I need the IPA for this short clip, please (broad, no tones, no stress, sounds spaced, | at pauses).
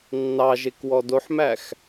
nː ɑ ʒ e k w ɔ d o ħ m æ x